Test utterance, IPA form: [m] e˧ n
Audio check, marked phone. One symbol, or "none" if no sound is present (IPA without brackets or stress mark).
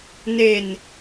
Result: n